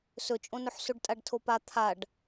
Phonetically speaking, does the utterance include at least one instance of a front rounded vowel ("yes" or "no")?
no